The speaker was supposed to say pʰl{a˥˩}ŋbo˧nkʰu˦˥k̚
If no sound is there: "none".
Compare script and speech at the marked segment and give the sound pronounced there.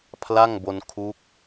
a˥˩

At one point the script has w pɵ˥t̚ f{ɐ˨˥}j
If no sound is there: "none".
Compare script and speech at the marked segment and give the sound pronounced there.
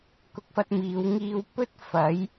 ɐ˨˥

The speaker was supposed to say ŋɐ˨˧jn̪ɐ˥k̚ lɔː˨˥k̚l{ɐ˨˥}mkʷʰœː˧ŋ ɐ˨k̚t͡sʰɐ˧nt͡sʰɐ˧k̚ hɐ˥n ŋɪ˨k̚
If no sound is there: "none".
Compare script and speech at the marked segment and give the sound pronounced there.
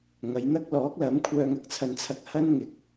ɐ˨˥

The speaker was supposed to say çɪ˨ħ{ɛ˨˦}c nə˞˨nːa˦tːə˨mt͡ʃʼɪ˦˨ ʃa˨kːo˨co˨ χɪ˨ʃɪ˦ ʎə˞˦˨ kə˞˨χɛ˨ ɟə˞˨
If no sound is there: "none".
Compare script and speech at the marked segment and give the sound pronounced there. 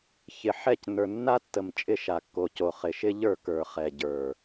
ɛ˦˨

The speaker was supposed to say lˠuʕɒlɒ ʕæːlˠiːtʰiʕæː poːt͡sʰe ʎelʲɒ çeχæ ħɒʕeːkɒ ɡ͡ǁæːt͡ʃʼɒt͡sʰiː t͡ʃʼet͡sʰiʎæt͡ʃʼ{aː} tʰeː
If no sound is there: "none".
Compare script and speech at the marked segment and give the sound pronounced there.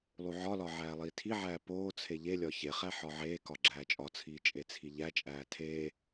æː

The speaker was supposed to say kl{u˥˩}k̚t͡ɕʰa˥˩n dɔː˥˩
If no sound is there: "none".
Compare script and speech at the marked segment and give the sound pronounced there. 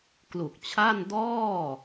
u˨˩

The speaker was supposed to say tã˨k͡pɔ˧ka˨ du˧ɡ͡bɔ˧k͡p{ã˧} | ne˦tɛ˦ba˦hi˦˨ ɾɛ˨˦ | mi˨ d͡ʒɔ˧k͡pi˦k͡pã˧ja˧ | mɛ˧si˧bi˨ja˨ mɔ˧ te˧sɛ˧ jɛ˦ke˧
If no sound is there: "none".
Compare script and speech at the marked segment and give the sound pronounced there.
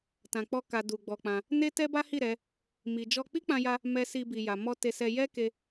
ã˧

